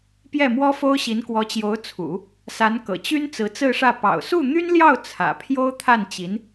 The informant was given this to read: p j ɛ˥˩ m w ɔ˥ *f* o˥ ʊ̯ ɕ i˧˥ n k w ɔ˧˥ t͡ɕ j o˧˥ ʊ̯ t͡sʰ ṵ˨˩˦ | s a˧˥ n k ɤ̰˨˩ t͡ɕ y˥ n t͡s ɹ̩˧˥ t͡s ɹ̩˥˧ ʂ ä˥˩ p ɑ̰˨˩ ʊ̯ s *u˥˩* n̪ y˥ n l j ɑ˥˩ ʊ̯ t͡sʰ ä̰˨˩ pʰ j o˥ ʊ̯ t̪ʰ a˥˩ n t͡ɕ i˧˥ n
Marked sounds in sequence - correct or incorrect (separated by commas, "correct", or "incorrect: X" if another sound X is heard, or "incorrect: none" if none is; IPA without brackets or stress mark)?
correct, correct